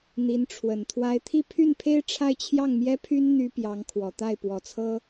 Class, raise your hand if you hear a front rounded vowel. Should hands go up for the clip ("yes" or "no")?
yes